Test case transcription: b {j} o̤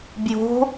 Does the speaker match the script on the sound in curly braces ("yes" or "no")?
yes